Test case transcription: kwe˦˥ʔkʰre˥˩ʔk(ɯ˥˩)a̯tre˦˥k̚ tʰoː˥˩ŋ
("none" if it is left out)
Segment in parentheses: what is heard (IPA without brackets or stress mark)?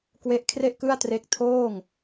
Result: ɯ˥˩